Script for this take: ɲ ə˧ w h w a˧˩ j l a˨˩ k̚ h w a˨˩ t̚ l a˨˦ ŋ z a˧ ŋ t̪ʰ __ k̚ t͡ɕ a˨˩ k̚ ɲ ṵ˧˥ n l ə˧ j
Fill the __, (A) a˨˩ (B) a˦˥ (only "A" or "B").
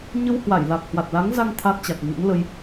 B